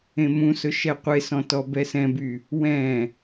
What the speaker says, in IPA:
ẽ m ũ s ɵ ʃ ɛ qʷ e s ɔ̃ t ɔ b ɛ s ɛ̃ b y | w ɛ̃

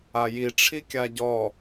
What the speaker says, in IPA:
a j i ʈ͡ʂʰ i kʲ a ɟ ɔ

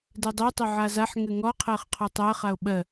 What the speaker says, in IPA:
d ɛ dˤ e tˤ o ʕ a z a ħ ŋ ɘ ŋ ɔ qʰ ɜ χ qʰ ɔ tˤ ɜ χ a o̯ ɓ ɜ

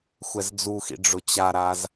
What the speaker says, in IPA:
xʷ ɛ z d͡z u x ḭ ɖ͡ʐ ʊ t͡ɕ a ɾ a z

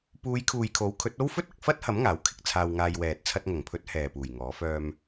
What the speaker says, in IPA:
p uː˨˧ j kʰ uː˨ j kʰ o˨˥ w kʰ ɵ˨˥ t̚ o˥ w f ɵ˥ t̚ ɐ˨ k̚ f ɐ˥ t̚ h ɐ˨˥ m ŋ aː˨˥ w kʰ ɪ˧ k̚ t͡sʰ aː˧ w ŋ aː˧ j w ɛː˨ t̚ t͡sʰ ɐ˧ t̚ ŋ ɐ˨˩ ŋ pʰ ɵ˨˥ t̚ h ɛː˨ p uː˨˩ j ŋ ɔː˨˥ f œː˧ m

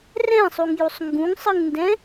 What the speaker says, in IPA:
r ɛ̃ sˤ u ŋ j u sˤ ŋ ɡ ũ ŋ sˤ ɯ ŋ n d ɛ̃

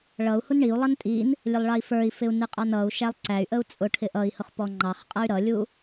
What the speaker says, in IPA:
ɭ ʌ u̯ h u n ɳ i u̯ lˠ ʌ n tʼ i n | lʲ ə lˠ ɭ ɑ i̯ f ə˞ i̯ f ɪ u̯ n ɪ qʼ ɑ n ʌ u̯ ʃ æ lˠ ǀ æ y̯ ʔ ə u̯ t͡sʼ ʊ ʈʰ ɪ ʔ ʌ i̯ h ʊ χ p ɔ ŋ͡ǃ ɑ χ qʼ ʌ y̯ ɾ ʌ lʲ u

